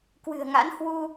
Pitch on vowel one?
low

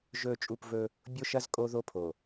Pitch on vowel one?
falling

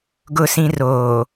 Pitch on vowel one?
low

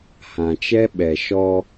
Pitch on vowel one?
low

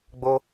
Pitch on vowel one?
high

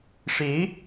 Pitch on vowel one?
rising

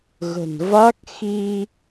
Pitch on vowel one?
low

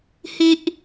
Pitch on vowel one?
high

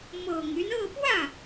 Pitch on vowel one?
low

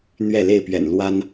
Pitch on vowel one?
falling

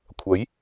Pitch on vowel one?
rising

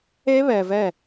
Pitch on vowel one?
high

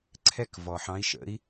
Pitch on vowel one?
falling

